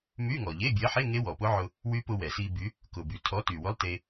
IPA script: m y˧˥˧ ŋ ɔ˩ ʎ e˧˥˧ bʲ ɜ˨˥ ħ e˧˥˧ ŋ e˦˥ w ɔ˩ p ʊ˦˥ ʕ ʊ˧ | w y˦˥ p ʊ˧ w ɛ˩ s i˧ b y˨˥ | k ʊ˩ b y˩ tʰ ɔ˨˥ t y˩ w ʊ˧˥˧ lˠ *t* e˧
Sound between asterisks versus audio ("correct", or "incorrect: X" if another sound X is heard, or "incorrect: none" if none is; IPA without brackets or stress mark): correct